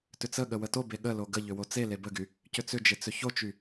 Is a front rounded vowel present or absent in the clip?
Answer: present